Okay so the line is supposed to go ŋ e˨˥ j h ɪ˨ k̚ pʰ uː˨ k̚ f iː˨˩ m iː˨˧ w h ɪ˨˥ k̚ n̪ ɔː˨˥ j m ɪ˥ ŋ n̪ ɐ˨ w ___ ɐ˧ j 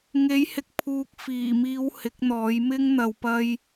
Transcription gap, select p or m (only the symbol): p